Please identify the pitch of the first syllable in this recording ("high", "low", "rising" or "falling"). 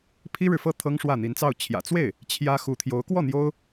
high